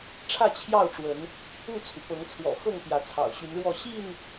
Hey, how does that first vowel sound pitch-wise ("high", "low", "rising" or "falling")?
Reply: falling